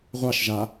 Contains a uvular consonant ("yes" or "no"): yes